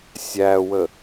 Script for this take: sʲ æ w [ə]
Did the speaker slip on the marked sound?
no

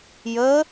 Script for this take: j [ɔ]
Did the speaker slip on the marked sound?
yes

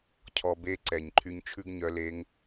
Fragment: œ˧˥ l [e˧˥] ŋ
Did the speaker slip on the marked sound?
no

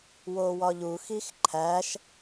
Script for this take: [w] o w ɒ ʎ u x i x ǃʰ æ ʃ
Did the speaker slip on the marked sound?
no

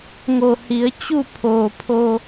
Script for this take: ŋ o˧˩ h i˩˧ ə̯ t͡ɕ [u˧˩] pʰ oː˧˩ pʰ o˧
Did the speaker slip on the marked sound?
yes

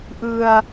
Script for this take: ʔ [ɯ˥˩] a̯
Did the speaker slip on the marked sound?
yes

